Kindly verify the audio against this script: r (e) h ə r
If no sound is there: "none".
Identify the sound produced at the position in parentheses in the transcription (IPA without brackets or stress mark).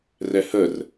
ɛ